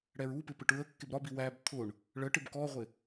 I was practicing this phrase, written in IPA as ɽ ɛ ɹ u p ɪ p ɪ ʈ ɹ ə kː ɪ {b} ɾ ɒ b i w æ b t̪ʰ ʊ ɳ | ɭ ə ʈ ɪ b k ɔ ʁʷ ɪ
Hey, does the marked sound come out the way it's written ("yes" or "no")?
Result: yes